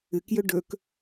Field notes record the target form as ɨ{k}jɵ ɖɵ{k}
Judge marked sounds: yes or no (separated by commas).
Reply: yes, yes